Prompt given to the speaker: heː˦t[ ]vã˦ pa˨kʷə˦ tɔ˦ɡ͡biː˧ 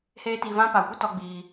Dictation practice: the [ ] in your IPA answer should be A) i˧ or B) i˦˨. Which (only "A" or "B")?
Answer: A